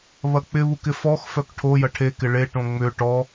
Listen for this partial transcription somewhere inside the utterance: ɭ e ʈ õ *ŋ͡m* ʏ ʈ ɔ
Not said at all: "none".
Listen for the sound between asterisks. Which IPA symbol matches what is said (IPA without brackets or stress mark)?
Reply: ŋ͡m